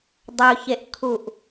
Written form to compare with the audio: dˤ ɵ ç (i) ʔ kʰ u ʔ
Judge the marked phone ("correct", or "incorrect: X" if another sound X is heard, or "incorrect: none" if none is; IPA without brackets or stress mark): incorrect: e